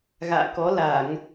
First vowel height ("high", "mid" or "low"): low